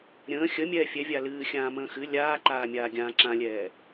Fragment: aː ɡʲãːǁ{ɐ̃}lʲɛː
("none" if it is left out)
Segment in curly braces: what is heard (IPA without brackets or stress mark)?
ã